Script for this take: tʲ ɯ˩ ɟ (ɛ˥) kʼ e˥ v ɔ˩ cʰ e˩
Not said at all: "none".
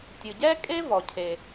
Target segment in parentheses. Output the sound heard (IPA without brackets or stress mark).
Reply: ɛ˥